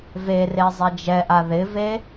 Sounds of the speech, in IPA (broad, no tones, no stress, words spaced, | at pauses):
vere zˤed͡ʒɛʔa ðɪve